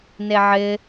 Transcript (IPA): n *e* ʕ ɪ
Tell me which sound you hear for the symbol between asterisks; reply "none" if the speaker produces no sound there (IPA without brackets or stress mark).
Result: e